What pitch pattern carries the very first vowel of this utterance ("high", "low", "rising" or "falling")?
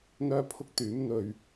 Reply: high